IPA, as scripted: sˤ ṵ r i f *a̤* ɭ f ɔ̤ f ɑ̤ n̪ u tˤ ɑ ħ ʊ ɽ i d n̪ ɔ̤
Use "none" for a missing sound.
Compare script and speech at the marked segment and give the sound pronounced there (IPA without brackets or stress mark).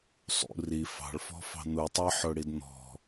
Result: ɑ̤